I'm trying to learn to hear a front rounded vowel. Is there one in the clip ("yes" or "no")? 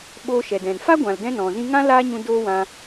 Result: no